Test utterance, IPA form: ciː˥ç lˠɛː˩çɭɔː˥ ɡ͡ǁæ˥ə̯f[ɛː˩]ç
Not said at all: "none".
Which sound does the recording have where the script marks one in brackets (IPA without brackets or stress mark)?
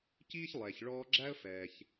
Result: ɛː˩